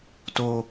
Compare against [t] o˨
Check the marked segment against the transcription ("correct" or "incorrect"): correct